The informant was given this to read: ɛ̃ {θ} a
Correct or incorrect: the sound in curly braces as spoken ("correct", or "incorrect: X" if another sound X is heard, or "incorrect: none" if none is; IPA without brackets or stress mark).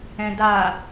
incorrect: d